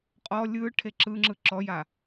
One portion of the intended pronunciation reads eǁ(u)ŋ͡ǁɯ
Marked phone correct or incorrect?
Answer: incorrect: ɯ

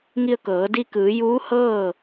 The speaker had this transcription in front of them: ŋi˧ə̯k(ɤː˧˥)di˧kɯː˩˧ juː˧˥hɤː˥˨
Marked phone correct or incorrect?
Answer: incorrect: ɤː˩˧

